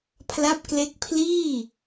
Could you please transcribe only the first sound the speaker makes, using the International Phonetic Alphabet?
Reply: pʰ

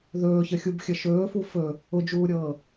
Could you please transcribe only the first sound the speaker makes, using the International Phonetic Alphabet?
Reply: ð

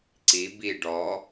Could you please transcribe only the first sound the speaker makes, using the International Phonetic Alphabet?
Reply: ǀ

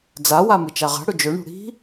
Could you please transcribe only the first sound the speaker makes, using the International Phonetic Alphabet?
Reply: d͡z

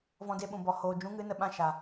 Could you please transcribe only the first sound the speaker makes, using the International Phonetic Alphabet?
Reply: v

